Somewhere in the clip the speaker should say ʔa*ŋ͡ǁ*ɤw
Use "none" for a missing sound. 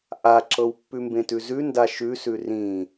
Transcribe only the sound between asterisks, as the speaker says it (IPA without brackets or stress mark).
ǁ